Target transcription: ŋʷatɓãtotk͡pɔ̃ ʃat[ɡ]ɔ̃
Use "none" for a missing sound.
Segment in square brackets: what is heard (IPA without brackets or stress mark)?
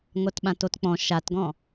ɡ